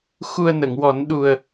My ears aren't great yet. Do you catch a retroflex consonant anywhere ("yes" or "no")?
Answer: no